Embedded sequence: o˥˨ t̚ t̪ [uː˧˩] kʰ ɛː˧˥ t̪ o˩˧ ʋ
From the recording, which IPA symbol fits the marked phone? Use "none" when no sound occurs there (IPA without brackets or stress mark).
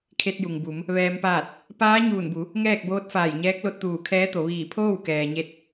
uː˧˩